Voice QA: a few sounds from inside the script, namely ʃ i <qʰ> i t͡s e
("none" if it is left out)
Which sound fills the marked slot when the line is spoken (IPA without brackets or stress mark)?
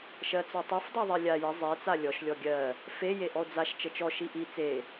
ʔ